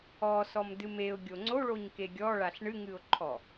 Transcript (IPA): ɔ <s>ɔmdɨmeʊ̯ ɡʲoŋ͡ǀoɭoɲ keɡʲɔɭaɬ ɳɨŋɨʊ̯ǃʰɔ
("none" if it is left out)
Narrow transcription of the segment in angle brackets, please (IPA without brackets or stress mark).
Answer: s